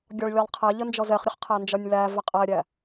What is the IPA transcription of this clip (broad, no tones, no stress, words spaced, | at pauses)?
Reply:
ɡʲɒɭlʲælˠqʰæʎə nd͡ʒɔzɛχɾʲəχ qʰænd͡ʒɒnʲlævɛ qʼæɾʲæ